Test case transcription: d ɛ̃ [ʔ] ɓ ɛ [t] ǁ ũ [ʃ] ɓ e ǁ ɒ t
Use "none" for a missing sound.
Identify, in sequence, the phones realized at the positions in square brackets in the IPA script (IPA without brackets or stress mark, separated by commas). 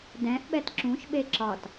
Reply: ʔ, t, ʃ